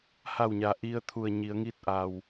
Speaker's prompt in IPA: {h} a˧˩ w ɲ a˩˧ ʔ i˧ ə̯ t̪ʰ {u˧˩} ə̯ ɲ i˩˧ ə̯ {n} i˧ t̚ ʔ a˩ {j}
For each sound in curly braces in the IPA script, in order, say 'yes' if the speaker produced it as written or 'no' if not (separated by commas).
yes, yes, no, no